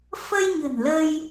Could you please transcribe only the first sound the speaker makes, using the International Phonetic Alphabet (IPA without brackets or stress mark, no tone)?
f